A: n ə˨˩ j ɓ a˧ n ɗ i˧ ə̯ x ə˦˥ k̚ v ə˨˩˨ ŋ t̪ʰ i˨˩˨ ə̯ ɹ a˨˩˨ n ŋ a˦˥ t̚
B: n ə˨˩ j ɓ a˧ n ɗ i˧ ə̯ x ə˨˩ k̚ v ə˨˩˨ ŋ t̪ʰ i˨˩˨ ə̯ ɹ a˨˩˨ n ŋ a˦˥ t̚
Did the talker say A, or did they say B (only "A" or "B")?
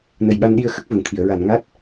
A